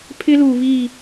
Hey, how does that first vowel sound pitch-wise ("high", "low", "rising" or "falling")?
high